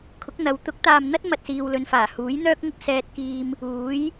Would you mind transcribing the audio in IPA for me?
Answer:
kʰ ʊ˨˥ k̚ n̪ ɐ˨˧ w t̪ ʊ˨˥ k̚ t̪ aː˨ m n̪ ɐ˥ t̚ m ɐ˧ t̚ s iː˧ w l ɵ˧ n f aː˨˩ h uː˨˥ j n̪ œː˥ k̚ ŋ ʊ˥ k̚ s ɛː˧ t̚ k iː˧ m | uː˨˥ j

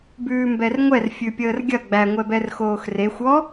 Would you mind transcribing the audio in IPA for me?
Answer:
b ʉː m b ɛ r ŋʷ ɛ r fʲ ʉ pʲ əː r ɡʲ ɐ ɡ͡b æ ŋʷ ɛ b ɛ r x oː x r e xʷ ɔ

